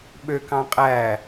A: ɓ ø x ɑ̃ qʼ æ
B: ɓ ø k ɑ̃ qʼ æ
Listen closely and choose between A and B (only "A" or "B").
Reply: B